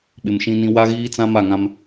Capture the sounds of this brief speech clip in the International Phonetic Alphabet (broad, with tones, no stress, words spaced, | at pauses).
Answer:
ɓɪ˨mʃĩ˦nĩ˦ wa˦ɣiː˦t͡sã˦ ma˦˨ŋã˦m